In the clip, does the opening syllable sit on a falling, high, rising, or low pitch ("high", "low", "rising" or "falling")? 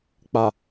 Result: low